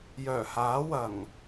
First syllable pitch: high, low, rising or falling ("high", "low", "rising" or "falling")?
low